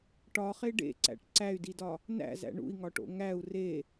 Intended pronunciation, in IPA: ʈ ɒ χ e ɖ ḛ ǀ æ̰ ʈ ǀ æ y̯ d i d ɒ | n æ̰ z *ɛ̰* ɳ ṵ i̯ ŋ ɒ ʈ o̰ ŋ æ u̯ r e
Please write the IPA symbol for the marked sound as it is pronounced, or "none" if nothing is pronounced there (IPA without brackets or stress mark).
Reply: æ̰